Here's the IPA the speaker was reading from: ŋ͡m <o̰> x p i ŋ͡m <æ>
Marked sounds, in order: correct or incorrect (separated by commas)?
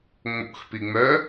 correct, incorrect